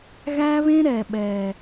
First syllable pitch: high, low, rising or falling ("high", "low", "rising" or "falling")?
high